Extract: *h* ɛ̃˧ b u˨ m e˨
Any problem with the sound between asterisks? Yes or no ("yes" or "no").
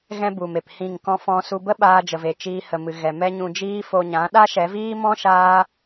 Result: yes